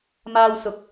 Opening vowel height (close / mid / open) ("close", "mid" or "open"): open